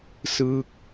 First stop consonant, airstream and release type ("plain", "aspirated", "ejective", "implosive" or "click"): plain